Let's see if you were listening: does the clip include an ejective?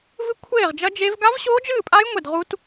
yes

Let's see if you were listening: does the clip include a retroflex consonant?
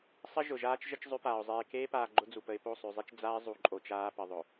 no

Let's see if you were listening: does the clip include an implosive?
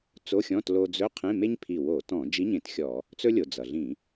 no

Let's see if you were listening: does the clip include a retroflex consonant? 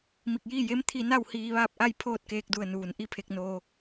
no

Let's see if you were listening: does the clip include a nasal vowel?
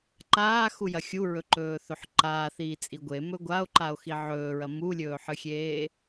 no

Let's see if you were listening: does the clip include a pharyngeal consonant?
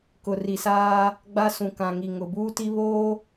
no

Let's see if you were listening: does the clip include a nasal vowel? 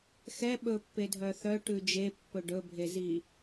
no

